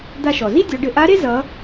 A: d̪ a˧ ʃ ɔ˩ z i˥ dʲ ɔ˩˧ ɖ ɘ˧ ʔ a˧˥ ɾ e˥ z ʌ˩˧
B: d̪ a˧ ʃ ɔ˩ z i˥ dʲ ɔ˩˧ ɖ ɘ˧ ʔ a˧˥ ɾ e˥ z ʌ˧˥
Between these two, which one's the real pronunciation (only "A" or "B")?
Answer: A